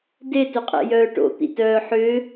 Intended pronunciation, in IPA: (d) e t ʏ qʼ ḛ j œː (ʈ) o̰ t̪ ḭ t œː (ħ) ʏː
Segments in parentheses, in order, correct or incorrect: correct, correct, correct

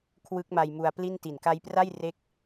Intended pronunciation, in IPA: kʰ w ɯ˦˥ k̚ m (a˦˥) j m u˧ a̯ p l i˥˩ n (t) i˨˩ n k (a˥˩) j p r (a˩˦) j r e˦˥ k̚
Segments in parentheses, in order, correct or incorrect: incorrect, correct, incorrect, incorrect

